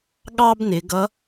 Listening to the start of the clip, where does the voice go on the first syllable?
high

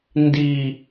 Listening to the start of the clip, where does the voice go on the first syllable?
high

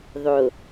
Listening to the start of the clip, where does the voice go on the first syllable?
low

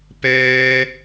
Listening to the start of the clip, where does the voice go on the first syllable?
high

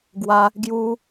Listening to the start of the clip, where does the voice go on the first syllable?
high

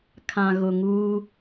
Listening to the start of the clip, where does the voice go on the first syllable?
low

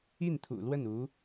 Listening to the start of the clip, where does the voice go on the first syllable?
falling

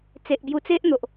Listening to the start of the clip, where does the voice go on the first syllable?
low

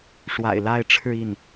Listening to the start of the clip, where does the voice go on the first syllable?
low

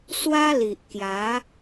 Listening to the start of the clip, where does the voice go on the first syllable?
high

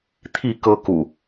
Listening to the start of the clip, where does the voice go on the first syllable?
falling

